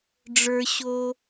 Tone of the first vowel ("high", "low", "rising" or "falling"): low